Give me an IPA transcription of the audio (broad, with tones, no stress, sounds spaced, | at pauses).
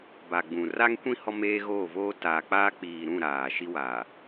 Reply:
b a˨ ɡ͡b ũ˨ r a˦ ŋ kʷ ĩ˦ h ɔ˦ m eː˦ ɣ oː˦˨ v oː˦ t aː˨ k͡p aː˦ k͡p iː˨ ɾ ũ˦˨ ɾ aː˨ ʃ i˦ w aː˨